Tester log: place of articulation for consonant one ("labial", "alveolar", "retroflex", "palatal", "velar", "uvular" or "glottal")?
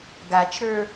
velar